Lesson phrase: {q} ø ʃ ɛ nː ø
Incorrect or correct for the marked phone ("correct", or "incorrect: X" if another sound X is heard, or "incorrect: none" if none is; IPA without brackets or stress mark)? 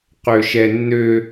correct